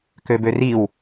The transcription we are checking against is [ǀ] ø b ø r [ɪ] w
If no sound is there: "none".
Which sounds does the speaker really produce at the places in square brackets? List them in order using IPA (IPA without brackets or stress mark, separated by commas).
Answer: k, i